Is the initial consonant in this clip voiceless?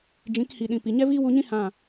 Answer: no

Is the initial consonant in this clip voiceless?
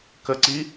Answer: yes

